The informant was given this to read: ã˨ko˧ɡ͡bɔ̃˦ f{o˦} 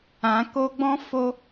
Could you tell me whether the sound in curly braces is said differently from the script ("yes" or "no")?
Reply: no